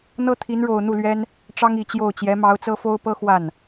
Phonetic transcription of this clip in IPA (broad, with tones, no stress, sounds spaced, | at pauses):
n̪ ɤ˥ t̪ʰ i˧˥ n ɻ o˨˩ ʊ̯ n̪ u˥˩ l ɥ ɛ˥ n | ʈ͡ʂ ɑ˥ ŋ i˨˩ t͡ɕ j o˥˩ ʊ̯ t͡ɕ j ɛ˧˥ m ɑ˧˥ ʊ̯ t͡s ɤ˥ f o˥ ʊ̯ p ɤ˥ x w a˥˩ n